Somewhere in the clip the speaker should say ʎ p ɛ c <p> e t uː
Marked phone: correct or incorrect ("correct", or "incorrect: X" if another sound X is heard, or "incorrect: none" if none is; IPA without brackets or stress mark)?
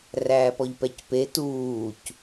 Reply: correct